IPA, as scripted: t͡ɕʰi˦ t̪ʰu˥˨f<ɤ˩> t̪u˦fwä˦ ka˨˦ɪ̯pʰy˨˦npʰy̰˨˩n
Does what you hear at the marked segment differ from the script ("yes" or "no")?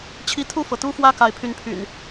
no